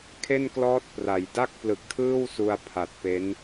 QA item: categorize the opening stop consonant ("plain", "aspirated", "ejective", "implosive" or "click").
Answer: aspirated